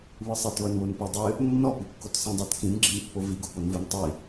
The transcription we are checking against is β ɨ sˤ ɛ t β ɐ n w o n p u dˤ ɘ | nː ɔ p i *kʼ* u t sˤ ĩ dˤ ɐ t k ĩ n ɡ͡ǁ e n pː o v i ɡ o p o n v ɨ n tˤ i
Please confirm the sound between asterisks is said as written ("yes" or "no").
no